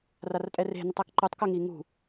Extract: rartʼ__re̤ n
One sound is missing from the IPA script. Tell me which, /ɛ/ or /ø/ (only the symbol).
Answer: ɛ